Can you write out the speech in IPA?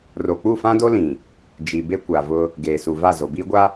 ro˨ k͡pu˦˨fã˦do˦lĩ˨ | d͡ʒi˨be˦kʷa˨vʊ˦ | ɡeː˨su˨va˦˨ zo˨biː˦ɡʷa˦

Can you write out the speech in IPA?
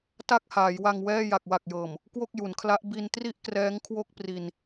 ta˥˩k̚haː˩˦jwa˧ŋwɛː˥˩ ja˨˩k̚wa˨˩k̚jɤː˨˩m | kwo˥˩k̚ju˩˦nkʰla˦˥ʔ bi˧ntri˥˩ʔkrɛː˦˥ŋ kʰwo˥˩k̚pri˧n

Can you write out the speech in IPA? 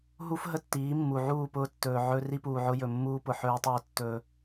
ɦu˦f ɦə˦tːiː˨˦mːu˨ ʕuː˦˨pʊː˦tːɵː˨ ʕɵ˦ ri˦puː˨ʕʊ˦ jɵ˨mːuː˦ pʊ˨ħɵː˦i̯tˤɵː˦˨ tːɵː˦

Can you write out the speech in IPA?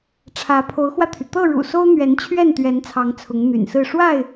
ʈ͡ʂʰä˨˦pʰo˨˦ʊ̯xwä˧t̪ʰy˩ t̪ɤ˥˨ɻṵ˨˩so˦ʊ̯n̪ɥɛ˨˦n t͡ɕʰɥɛ˥˨nt̪ɥɛ˨˦nt͡sʰɑ˨˦ŋ t͡sʰʊ˨˦ŋn̪y̰˨˩nsɹ̩˥˨ ʂwa˥˨ɪ̯

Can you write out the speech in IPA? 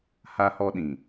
ha˦hɔ˦ɗĩ˨

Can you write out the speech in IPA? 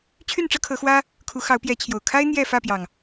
t͡ɕʰy˥˨nʈ͡ʂɤ˦kʰɤ˨˦xwä˦ | kʰu˨˦xɑ˨˦ʊ̯pjɛ˨˦t͡ɕʰjo˨˩ʊ̯ kʰa˦ɪ̯ n̪jɛ˥˨fä˥˨pjɑ˩ŋ

